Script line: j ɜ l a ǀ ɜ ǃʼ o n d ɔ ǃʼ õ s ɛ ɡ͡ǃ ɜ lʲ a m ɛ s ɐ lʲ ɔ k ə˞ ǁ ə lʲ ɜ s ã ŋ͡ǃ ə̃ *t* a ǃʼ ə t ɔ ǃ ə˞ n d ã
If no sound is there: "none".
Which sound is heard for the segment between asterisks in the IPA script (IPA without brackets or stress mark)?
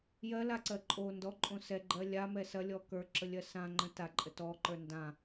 t